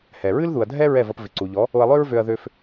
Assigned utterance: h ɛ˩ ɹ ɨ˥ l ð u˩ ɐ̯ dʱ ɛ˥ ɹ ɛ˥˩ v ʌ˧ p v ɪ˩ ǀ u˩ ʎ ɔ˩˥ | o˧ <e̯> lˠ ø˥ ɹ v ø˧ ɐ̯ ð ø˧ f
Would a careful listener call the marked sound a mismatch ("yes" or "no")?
yes